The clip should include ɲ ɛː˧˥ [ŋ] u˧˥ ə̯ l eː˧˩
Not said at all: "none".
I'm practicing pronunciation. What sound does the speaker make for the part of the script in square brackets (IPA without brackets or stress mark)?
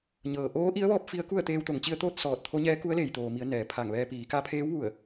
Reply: k